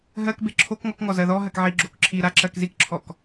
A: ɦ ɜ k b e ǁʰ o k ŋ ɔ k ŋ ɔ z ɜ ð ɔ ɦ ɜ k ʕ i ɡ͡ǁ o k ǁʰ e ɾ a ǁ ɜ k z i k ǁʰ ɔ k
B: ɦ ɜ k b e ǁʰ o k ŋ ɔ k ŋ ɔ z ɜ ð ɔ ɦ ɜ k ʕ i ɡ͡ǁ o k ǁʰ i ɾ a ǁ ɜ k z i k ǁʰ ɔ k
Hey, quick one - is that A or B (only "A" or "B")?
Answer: B